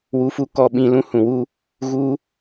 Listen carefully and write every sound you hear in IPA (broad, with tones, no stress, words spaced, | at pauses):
wu˧fu˦kɔ˧ ɓĩ˧lũ˦hũ˨wu˦ | ɣu˦